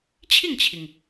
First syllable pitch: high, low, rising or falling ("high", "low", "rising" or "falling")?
falling